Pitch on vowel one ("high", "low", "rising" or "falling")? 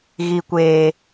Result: low